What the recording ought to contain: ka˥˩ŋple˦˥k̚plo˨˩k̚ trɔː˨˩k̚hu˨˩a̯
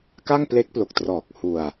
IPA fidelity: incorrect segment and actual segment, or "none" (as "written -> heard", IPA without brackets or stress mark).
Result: u˨˩ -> u˧